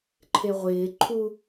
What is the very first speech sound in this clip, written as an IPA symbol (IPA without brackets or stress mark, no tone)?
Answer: ǃʰ